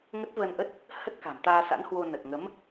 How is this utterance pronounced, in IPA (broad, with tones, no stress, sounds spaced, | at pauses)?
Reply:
ŋ ə˦˥ t̚ v ə˧ n ʔ ə˦˥ t̚ | h ə˦˥ t̚ k a̤˨˩ m t̪ aː˧ s a̰˧˥ n h w o˧ n ə˨˩ t̚ ŋ ə˨˦ m